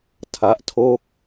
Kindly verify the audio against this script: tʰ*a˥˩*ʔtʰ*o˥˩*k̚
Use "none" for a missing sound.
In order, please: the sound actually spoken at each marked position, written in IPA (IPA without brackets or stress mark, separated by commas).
a˦˥, o˥˩